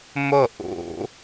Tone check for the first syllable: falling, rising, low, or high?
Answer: falling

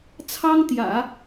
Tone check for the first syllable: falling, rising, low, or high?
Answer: high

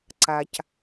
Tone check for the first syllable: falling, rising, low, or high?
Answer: low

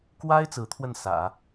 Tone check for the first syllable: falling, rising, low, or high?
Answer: high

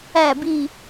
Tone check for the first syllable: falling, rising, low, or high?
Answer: low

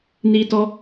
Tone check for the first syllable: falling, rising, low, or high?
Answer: high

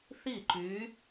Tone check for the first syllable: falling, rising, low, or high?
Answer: falling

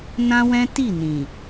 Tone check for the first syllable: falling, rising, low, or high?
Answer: high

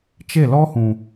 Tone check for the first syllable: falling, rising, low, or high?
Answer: falling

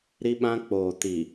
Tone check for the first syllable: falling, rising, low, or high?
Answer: high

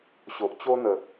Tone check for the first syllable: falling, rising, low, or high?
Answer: low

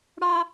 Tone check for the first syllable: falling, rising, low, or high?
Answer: high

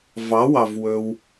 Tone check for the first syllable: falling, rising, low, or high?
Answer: rising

